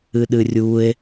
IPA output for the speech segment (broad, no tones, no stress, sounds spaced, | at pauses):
ɨ ɗ ɨ rʲ u e̯